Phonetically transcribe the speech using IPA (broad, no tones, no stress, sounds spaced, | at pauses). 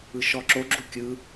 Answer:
ɯ ʃ ɔ ǁ o ɡ͡ǁ u kʲ ɯ